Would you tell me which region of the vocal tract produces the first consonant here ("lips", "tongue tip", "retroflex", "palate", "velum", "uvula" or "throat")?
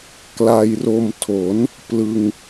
velum